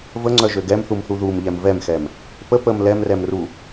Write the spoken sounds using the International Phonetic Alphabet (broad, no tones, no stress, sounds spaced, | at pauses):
v ə ŋ͡ǀ œ ʒ ø ɡ ɛ m θ u m θ u ð u m ʎ ɛ m v ɛ m x ɛ m | p ə p ə m l ɛ m r ɛ m r u